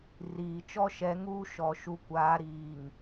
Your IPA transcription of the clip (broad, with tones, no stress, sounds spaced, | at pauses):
r iː˨ t͡ʃ ɔ˦ ʃ ɛ˨˦ ŋ uː˦ ʃ ɔ˨ ʃ u˨ kʷ aː˨˦ ɾ iː˨ ŋ